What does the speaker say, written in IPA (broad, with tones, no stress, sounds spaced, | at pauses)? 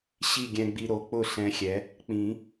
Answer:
ɕ i˥˨ ɡʲ ɛ̃˧ ɡ͡b i˧ ɾ o˩˥ k͡p ʊ˥˨ ɬ ɛ̃˧˥ xʲ ɛ˩˥ | k͡p ĩ˨˩˦